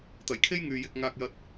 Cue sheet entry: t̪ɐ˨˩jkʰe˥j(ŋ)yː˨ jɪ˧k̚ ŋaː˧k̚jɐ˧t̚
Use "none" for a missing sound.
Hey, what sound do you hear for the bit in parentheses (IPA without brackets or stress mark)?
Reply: ŋ